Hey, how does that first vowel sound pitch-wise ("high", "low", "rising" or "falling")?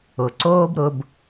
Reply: low